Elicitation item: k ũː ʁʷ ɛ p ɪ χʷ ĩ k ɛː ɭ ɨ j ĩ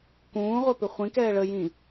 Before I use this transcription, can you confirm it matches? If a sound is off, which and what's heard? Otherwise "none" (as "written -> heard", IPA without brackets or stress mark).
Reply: ɨ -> ə